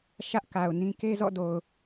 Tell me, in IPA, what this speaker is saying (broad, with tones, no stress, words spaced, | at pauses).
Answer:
ʃä˦ʔka˨ʊ̯ nĩ˦ ke˦zɔ̰˦˨do˨ʊ̯